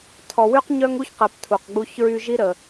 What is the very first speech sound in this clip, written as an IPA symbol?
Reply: tʰ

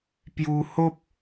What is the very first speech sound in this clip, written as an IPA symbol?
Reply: p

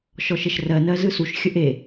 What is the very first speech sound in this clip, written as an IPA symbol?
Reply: ʃ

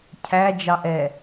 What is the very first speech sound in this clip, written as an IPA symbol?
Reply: cʰ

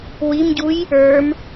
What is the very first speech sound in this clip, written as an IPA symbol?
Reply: w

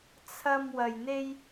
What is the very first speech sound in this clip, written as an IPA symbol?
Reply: t͡sʰ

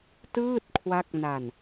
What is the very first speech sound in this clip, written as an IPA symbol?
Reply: t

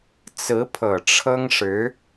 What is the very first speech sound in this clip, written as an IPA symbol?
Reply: t͡s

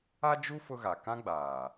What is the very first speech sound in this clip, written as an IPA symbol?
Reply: a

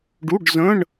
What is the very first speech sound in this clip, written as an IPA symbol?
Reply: ɖ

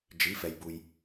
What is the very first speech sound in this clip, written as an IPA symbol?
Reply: d͡ʒ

